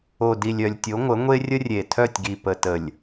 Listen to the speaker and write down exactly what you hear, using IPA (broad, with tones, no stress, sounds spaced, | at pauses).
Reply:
o˨ d i˨ lʲ œ˨ lʲ tʲ o˨˦ ŋʷ ə˨˦ ŋʷ e˦ rʲ ə˦ rʲ e˨ tʰ œ˦˨ tʲ ɡ i˨ p ə˨ t ə˨ lʲ